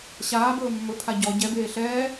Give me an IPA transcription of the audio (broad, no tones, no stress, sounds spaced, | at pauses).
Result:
ɕ aː b ɵː mː ɵ pʰ a ɟ ɔ ɟ ɛ b eː ɬ ɛː